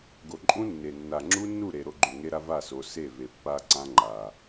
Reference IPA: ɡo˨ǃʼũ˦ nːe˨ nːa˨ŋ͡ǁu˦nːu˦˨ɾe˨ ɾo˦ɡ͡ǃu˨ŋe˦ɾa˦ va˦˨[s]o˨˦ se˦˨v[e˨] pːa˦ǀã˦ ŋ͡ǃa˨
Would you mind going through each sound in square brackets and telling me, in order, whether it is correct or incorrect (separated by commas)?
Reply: correct, correct